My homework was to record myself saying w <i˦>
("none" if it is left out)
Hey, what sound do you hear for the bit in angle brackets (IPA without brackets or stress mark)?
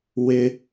ɪ˦